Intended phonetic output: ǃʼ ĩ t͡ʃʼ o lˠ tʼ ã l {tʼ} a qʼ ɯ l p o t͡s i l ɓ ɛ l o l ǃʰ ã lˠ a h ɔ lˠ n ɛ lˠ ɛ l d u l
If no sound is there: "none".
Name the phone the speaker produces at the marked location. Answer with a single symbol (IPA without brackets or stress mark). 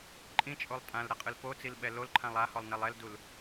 ɾ